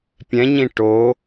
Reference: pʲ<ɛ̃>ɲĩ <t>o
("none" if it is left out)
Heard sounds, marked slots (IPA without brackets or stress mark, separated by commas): ɛ̃, ʈ